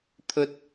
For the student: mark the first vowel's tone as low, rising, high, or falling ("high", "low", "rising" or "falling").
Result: high